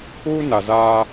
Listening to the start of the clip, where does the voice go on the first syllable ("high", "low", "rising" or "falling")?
high